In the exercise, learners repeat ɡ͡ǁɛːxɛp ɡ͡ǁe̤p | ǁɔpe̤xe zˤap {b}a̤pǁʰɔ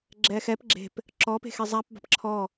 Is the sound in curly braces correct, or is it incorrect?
correct